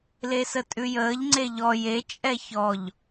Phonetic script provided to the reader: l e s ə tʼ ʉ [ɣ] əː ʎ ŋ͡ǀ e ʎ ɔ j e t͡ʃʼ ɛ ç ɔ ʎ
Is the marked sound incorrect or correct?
incorrect